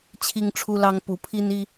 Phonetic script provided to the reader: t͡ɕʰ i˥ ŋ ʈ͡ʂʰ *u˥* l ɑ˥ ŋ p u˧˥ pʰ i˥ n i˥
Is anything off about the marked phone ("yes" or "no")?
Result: no